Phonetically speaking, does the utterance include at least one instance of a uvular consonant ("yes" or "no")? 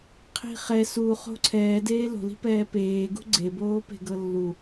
yes